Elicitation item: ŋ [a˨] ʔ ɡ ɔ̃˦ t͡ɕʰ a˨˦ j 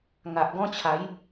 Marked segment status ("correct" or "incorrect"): correct